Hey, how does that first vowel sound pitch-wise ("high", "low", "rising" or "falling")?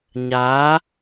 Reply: rising